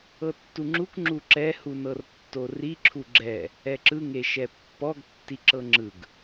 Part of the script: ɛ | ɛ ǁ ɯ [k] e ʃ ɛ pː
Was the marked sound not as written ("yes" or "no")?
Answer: yes